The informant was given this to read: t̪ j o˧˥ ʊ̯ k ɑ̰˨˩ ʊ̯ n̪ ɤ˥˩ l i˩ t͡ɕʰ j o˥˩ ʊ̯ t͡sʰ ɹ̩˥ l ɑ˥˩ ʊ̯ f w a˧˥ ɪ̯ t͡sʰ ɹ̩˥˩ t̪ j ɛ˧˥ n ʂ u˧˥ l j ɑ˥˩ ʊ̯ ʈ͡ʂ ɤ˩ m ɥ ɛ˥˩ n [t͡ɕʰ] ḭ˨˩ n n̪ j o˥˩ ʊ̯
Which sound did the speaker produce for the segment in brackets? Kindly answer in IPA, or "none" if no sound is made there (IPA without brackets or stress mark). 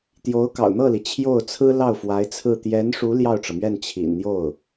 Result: t͡ɕʰ